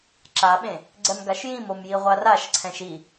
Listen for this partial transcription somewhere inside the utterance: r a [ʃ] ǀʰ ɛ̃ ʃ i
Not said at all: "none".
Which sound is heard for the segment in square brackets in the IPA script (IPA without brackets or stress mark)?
ʃ